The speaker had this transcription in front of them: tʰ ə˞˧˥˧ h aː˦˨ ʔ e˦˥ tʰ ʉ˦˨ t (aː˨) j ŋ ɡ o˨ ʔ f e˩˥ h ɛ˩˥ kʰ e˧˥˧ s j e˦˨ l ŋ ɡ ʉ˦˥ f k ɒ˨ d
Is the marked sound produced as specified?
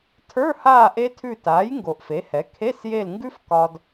no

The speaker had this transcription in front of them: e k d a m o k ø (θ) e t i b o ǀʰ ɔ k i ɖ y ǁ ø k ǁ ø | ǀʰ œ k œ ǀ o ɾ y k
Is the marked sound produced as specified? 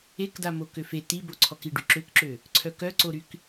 no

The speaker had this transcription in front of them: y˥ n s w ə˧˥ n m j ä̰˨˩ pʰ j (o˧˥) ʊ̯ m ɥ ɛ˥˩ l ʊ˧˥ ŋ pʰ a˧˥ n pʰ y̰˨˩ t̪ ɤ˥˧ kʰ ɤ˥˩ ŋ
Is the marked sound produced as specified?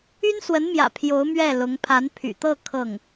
yes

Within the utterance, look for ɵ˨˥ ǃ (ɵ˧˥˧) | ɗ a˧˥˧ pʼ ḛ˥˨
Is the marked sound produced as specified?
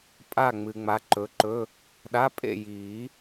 yes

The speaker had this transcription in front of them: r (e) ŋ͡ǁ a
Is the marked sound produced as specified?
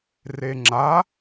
yes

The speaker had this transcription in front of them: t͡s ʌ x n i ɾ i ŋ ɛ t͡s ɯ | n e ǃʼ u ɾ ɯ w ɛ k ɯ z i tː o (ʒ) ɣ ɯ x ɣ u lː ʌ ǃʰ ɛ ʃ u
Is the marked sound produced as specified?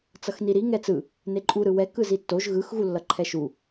yes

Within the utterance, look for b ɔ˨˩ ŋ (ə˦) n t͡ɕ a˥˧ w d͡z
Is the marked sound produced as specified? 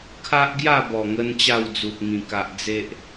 no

